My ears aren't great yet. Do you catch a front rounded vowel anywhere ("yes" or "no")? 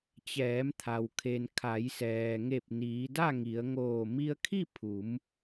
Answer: no